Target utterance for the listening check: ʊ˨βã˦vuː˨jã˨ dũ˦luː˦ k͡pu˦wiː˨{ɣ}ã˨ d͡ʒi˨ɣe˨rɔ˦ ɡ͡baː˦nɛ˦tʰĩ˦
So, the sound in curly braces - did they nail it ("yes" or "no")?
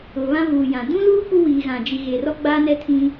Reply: yes